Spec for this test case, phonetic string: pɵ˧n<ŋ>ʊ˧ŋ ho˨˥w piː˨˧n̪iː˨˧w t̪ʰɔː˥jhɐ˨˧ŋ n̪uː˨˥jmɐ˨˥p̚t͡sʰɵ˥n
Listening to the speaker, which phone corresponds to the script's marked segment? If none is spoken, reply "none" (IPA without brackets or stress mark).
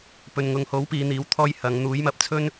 ŋ